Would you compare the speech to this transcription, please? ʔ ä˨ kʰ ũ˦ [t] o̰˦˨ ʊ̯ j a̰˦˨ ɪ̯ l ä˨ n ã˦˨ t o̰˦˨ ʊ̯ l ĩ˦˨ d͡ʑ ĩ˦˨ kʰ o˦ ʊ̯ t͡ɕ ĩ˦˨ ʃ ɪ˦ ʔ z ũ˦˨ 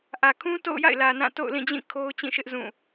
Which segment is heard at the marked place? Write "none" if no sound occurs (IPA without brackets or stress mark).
t